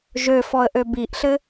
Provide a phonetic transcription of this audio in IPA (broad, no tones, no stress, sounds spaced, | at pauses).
ʒ ø f ɔ ə̯ ʔ ø b i ʔ ɬ ɘ